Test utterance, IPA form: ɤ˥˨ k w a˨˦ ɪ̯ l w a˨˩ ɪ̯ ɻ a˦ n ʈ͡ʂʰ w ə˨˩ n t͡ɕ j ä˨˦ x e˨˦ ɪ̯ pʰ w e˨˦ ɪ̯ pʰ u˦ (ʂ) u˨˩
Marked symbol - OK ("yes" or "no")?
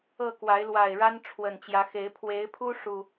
yes